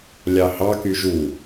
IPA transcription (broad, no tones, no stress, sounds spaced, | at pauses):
lʲ ɑ h ɑ k y ʒ u